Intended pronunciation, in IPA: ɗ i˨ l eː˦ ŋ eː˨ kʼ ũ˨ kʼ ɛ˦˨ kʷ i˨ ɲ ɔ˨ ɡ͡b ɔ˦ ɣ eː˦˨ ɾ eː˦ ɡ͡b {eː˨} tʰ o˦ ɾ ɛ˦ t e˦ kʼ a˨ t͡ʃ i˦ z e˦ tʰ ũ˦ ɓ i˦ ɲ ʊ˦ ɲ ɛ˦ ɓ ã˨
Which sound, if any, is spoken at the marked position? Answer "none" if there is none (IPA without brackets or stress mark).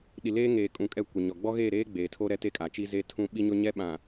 eː˨